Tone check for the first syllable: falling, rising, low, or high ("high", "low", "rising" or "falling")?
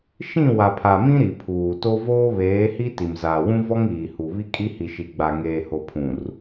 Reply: falling